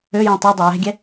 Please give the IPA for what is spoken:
øjẽ tˤødˤe jɛ̤ɡʲɛ

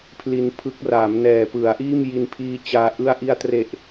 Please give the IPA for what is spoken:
pʰli˧npʰɯ˦˥k̚ raː˩˦mnɛː˨˩pɯ˩˦a̯ʔiː˥˩m ji˧npʰiː˧t͡ɕaː˧ ʔɯ˧a̯ʔi˧a̯tre˨˩ʔ

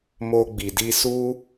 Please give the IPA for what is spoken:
mo˧ ɡ͡bi˨di˧ su˦

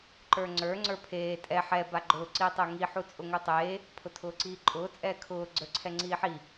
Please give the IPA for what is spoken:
ǃə˞ŋ͡ǀə˞ ŋ͡ǀə˞pʰeː tʼɛ ħɛ baɡ͡ǃʊː ǀiːtˤʊːŋi ħut͡sʼʊŋutˤeː | pʰʊtʰʊːǀiːǃʼʊː t͡sʼɛːkʰʊː ɡ͡ǀə˞ǀʰɛŋ͡ǀiːħi

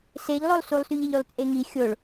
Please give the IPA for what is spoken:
seʎlˠolˠsulˠsyʎ ɛʎylˠt͡sʼeŋi xʲoɭ

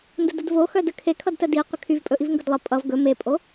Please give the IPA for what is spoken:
ndədədvo xœdəkʰe kʰʌdtədi qʷəkʰyvpʼɵʔiv ŋɡɵdlˠə pʼʌv ɡɵ mepʼo

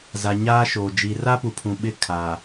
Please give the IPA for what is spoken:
za˨ɲaː˦ʃoː˨ d͡ʒi˨ra˦pu˨pʰũ˨ ɓɪ˦ kʰaː˨

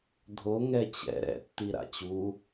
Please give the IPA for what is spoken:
dʱo ŋɛt͡ɕɛ̰ ɾɛ̰ tːiɾa̰t͡ɕu

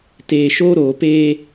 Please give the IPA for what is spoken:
teː˨ʃoː˦ɾoː˨peː˦

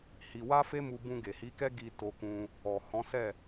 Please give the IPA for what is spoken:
hi˧ wa˦fe˦mu˧ bũ˧ɡe˨hi˨˦kɛ˦ ɡi˧ to˧kũ˧ | ɔ˨hɔ̃˨˦sɛ˦˨

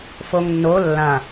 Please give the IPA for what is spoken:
foŋnːo lːã

